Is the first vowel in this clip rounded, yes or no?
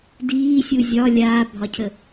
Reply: no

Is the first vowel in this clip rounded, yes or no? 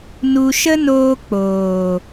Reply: yes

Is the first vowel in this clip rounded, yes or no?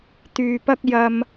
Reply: yes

